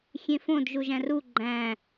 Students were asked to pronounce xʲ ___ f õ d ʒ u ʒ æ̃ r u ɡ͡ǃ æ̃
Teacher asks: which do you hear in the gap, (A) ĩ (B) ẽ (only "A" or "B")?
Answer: B